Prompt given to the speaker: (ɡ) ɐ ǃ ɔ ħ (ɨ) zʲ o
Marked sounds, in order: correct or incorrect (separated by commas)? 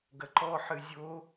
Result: correct, correct